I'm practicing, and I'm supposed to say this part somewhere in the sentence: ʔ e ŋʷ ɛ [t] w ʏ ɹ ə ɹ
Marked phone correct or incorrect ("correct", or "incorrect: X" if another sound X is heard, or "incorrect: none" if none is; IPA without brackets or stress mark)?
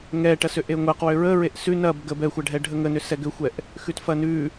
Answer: incorrect: q